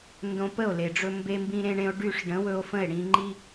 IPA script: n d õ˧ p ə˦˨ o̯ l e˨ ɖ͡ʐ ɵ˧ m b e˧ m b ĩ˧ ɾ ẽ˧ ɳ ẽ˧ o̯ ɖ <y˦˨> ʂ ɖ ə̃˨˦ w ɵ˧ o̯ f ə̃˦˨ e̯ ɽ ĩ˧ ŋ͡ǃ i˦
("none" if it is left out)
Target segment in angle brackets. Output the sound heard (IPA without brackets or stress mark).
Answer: y˦˨